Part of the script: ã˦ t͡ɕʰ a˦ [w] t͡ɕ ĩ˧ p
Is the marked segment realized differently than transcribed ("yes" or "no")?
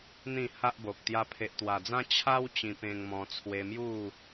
no